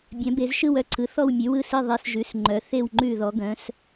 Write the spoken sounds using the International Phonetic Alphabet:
bʲœ̃˩˧be˩˧z ʃɯ˦˨wœ˦˨ǀʰɯ˩˧ θɔ˦˨wmʲʉ˩˧wɯ˦˨si˦˨ ðˤi˩˧sʒʉ˩˧sŋ͡ǃœ˩˧ θe˦˨wŋ͡ǃʉ˦˨ ðɔ˩˧ɡœ̃˩˧s

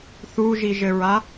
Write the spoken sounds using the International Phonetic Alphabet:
θuʒiʒɘɹa

